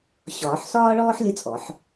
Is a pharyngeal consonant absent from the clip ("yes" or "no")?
no